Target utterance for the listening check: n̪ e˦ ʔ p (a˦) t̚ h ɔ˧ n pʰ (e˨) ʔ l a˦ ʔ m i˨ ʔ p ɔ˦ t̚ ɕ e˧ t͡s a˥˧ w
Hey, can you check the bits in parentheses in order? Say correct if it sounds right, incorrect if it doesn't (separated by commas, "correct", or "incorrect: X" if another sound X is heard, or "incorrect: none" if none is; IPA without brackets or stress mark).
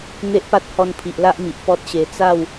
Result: correct, incorrect: i˨